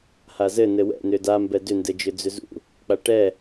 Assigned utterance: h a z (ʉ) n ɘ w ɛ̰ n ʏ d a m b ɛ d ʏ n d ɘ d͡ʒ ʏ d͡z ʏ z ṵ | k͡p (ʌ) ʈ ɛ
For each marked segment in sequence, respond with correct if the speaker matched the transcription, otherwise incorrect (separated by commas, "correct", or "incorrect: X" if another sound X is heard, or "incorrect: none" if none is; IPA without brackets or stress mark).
incorrect: ɘ, incorrect: a